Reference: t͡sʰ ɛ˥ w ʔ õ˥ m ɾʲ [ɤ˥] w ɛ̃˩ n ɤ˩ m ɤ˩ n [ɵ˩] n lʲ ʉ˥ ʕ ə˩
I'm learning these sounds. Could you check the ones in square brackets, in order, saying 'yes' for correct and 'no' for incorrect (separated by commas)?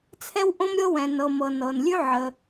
yes, no